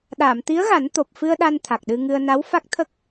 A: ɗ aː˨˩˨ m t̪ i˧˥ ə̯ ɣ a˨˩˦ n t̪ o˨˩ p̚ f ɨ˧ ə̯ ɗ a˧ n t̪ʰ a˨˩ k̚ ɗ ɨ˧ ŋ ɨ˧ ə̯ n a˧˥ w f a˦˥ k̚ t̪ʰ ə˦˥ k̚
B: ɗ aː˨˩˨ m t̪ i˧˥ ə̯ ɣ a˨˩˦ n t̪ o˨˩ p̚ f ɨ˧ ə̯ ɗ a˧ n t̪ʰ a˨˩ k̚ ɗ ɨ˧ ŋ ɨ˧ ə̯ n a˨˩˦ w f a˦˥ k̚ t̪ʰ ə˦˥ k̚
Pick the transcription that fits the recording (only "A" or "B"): A